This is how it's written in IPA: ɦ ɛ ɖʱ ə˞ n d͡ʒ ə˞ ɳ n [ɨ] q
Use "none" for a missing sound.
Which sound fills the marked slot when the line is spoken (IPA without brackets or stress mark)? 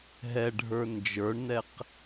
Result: ɛ